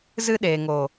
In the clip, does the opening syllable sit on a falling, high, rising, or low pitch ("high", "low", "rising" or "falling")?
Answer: high